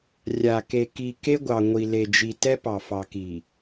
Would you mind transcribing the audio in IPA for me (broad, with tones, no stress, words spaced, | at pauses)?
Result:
rʲa˨ ke˨ki˨ ke˦ɡʷɑ˨ŋʷi˨ le˨d͡ʒi˨ tɛ˦pɑ˨ fɑ˨ki˨